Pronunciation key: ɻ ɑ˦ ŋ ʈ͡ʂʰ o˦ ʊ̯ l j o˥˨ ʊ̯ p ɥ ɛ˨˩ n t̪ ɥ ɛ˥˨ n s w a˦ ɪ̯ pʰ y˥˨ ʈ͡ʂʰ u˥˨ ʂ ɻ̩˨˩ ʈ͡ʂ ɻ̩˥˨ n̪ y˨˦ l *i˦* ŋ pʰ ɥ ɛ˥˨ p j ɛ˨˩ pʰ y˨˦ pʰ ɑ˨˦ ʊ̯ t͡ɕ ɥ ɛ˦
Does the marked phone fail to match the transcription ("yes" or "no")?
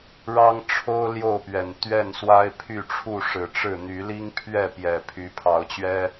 no